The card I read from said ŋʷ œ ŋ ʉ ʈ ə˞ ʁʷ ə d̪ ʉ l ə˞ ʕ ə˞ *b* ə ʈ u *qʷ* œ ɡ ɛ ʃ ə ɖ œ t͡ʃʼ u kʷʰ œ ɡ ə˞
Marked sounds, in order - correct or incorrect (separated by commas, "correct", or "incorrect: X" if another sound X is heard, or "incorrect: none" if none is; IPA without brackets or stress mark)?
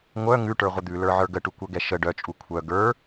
incorrect: ɡ, incorrect: kʷ